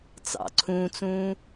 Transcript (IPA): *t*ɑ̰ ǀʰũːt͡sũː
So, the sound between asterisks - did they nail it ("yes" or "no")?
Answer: no